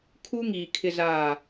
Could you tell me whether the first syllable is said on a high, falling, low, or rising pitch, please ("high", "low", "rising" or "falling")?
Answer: high